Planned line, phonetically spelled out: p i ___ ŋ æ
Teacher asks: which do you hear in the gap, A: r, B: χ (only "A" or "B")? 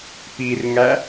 A